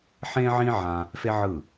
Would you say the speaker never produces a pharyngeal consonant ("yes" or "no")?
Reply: no